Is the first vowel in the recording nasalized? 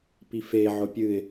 no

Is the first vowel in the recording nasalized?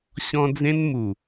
yes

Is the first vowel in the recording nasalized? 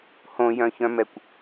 yes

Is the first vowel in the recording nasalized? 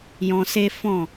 yes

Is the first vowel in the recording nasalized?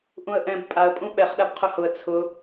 yes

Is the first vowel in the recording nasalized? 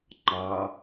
no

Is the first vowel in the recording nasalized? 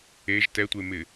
no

